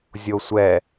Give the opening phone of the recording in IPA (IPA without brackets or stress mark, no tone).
zʲ